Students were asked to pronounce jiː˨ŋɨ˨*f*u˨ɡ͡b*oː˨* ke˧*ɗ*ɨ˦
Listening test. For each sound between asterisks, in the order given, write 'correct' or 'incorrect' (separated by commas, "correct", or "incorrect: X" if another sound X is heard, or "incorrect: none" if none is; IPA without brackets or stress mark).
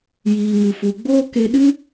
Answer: correct, incorrect: oː˦, correct